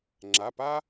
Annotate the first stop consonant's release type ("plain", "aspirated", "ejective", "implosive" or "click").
click